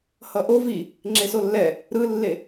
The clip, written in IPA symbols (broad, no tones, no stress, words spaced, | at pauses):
hʌʔo vi | ŋ͡ǁesolːɛ | ɾɯlːe